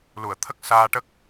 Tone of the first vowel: low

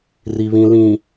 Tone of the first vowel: low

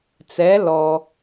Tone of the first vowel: rising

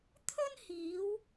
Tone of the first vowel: high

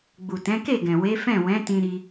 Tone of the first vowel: low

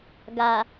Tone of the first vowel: low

